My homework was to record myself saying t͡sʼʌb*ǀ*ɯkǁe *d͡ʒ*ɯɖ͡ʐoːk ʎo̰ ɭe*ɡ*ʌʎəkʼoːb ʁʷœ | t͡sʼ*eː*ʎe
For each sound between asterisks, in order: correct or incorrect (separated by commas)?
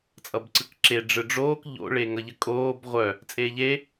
correct, incorrect, incorrect, correct